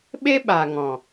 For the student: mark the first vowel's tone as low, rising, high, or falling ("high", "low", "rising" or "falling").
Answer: high